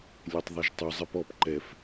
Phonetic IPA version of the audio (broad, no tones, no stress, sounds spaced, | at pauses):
lʲ e tˤ ðˤ ɛ ʒ tˤ u zˤ ɛ p ɔ p ǃ ɛ f